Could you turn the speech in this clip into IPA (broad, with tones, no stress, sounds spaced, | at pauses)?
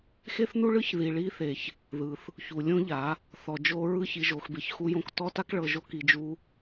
x e˦ θ n u˦ ɭ ɯ˦ ç ð i˨ ɭ i˧ θ e˨ ç | ð ɯ˨ θ | ç u˨ lʲ õ˦ ʎ a˨˦ | θ ɔ˨ d͡ʒ o˧ ɹ ɯ˦ ç i˨ ʒ o˨ x b e˨ ç x u˧ j õ˧ k t ɔ˦ t a˦ k ɭ ɤ˧ ʒ o˦ k i˧ d͡ʒ u˦